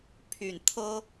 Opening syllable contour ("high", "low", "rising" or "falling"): low